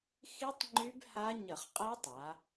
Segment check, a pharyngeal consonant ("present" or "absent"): absent